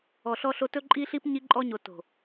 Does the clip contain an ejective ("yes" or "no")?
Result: yes